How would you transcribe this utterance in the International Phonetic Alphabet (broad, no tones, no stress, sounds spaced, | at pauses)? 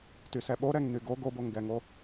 t y s ɛ ɓ o ɾ ɛ ŋ n y ɡ o ɡ o b o ŋ ɡ ɛ ŋ o